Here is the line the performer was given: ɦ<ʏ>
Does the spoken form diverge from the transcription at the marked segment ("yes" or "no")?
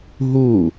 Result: yes